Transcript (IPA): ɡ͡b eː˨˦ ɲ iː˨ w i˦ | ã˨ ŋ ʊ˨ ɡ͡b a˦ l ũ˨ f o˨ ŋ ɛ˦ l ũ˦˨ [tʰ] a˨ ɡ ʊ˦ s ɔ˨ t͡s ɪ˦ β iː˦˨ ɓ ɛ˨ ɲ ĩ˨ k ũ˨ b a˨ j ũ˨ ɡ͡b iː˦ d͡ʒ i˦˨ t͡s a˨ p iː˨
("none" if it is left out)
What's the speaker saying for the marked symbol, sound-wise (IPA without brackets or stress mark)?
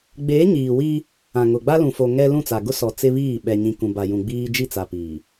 t͡s